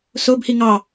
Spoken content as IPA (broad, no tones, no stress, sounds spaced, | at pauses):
s o b h i ŋ ɑ